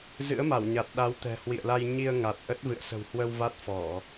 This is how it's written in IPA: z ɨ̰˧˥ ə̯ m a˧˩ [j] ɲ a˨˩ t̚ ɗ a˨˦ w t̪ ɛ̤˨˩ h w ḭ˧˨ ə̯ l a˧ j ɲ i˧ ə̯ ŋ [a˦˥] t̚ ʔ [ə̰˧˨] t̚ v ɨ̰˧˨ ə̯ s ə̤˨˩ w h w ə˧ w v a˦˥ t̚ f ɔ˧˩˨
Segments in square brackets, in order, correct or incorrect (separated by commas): incorrect, incorrect, incorrect